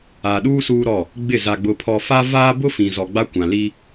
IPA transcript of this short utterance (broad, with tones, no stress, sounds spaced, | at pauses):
a˨ ɗ uː˦ s uː˦ ɾ ɔ˦˨ | ɡ͡b ɪ˦˨ z a˨ ɡ͡b ʊ˨ pʰ ɔ˨ f a˦ v aː˦ b ʊ˦ f ĩ˨ z ɔ˨ ɡ͡b a˦ kʷ ã˨ l i˦